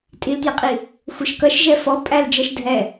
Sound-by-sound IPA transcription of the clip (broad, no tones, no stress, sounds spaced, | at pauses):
tʼ i l t j ə qʼ i | xʷ ə ʃ k ʌ ʃ ʒ ɛ f ɔ pʼ æ l d͡ʒ ʌ ʃ dʱ ɛ